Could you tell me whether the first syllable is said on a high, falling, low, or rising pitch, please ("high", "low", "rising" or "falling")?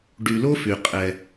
low